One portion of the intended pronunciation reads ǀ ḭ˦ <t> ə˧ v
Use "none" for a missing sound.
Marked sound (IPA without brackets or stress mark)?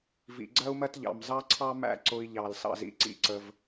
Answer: ǀ